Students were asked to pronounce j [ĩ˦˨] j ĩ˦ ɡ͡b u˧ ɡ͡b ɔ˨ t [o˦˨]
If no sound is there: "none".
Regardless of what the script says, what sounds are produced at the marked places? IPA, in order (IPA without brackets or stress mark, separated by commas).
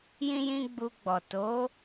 ĩ˦, o˨˦